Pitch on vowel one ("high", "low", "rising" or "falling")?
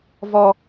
high